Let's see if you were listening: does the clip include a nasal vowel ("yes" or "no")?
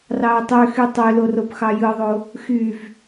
no